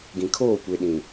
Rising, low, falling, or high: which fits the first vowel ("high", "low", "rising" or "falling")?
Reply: low